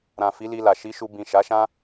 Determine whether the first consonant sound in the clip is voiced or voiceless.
voiced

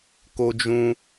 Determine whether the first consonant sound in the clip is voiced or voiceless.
voiceless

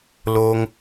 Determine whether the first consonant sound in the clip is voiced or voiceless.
voiced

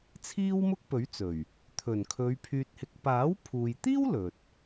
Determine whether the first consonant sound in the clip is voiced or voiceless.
voiceless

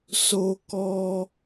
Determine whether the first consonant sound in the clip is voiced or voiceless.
voiceless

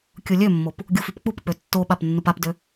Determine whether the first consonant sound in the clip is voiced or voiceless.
voiceless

